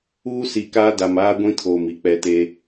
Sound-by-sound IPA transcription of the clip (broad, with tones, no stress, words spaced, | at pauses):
uː˦si˨kaː˦ da˨maː˦ɡʷĩ˦ tʰoː˨mi˨k͡pɛ˨ te˦